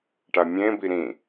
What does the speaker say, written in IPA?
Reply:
ʈamʲẽbi ɾĩ

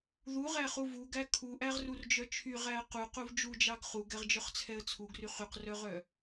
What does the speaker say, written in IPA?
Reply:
ðuʁæχu vuɡæ kʰuʔæʁrurd͡ʒœ t͡ʃʰyʁæə̯ ququv d͡ʒud͡ʒɑɡ χuɡɛʁd͡ʒœχt͡sʰɛə̯ t͡sʰuɡry χyqrœʁœ

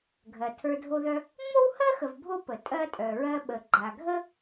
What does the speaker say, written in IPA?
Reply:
ɡʱɜ˨tʰə˞˦ dʱo˦ðœ˦ | ŋ͡mo˥whɜ˥xə˨v bʱo˥pə˨ tʼɜ˦tʼœ˨ɹɜ˦ɓə˨ ɡ͡ǃa˨ɡʱə˥

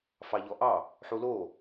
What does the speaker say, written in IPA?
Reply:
fɑʎɔʔɑ | ħulo

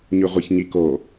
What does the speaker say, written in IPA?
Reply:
ɲyʁʷaçɲiko

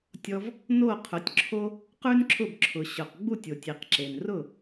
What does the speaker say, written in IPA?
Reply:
tʲɔ˧v | no˥˩ qʰʊ˩˥tʲǁʰo˥ | qʉ˥nǁʰʊ˥˩bǁʰʊ˩ɕʊ˩q ɡ͡bu˥˩tʲo˩tʲ i˩qǁe˩n rʊ˥˩

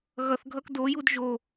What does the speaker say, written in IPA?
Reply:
ɣʌθɡʱʌk dojud ʒo

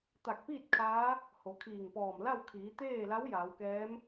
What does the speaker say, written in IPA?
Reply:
t̪a˧˩k̚piː˥˨t̚ kʰaː˧˥ | ho˩˧kʰiː˧˩ŋpɔː˧˩m la˥˨wkʰiː˩˧t̪eː˥˨la˧˥w jaː˩˧wkɛː˧˥m

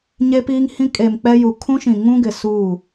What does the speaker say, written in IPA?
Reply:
ɲe˦piː˦ŋhĩ˦ kʼe˨m k͡pɛ˦ju˨ kʰũ˦ʃĩ˨ŋũ˦ɡɪ˨ suː˦˨

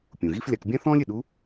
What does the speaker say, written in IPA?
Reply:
pʲũ˩ɣi˥flʲa˧k bʲã˥θɔ̃ː˥lʲɪ˩ ɗu˧˥

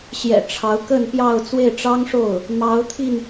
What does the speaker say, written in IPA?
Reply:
ɕjɛ̰˨˩ ʈ͡ʂʰɑ˧˥ʊ̯kə˥˧npjɑ˥˧ʊ̯ t͡swe˥˩ɪ̯ʈ͡ʂɑ˥ŋʂo˥˩ʊ̯ | mɑ˧˥ʊ̯t̪ʰi˧n

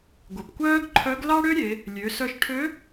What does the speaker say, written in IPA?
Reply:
ɡʷə˩pkʷœː˥ɡǃʰœ˧˥ɡ lɑ˥ɽø˥ɾʲe˩˧ | lʲø˩˧sœ˧ʃʈʰø˧˥

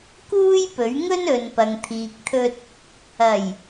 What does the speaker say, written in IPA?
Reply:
kuː˥jpɵ˨˥ɥ ŋɵ˥nɵ˨npɐ˨ŋ t̪ʰiː˨k̚t̪ʰɵ˧t̚ | ɐ˨˩j

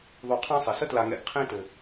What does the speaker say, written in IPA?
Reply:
ðˤu˨qʰɑ̃˦ sˤɘ˩sə˥tla˨ ŋɛ̰˨ɡqʰẽ˦tɘ˩

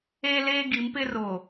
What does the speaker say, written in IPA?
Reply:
eː˦leː˦ ɡi˨˦mpɪ˦roː˨

